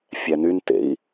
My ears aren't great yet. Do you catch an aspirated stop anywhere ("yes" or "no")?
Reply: no